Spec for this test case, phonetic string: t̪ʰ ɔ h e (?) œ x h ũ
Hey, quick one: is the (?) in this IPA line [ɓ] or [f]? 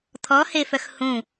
f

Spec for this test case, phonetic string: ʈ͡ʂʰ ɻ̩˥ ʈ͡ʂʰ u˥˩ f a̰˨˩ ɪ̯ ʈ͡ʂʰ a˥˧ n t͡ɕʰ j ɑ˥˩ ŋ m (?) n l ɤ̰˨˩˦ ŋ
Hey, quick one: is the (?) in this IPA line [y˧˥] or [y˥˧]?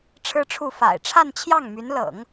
y˧˥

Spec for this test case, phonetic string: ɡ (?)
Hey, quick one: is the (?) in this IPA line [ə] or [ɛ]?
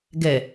ɛ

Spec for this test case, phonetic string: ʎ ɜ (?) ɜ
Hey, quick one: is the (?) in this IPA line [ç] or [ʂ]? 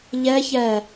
ç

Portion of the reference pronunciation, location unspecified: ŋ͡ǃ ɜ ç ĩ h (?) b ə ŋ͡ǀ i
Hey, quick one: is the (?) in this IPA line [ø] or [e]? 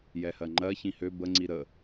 ø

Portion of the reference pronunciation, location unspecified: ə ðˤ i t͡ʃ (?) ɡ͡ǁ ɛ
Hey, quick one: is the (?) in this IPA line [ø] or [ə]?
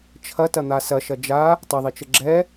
ə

